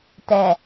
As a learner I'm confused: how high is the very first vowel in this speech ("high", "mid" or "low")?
mid